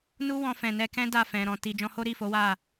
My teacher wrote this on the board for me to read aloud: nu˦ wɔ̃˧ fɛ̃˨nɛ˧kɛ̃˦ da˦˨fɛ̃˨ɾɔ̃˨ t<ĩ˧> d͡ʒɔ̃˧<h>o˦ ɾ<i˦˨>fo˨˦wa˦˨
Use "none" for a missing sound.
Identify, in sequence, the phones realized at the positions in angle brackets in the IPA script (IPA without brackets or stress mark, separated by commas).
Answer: i˧, h, i˦˨